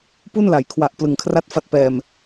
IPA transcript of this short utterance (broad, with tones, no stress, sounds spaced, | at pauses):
p u˥˩ n l a˩˦ j kʰ w a˨˩ ʔ p l ɯ˨˩ ŋ kʰ r a˥˩ t̚ f a˦˥ t̚ p ɛː˨˩ m